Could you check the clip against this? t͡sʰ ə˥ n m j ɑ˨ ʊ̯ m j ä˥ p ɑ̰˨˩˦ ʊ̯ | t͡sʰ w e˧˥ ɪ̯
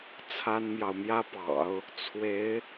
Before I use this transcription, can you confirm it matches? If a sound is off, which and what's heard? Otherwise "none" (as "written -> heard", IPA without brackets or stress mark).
ə˥ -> a˥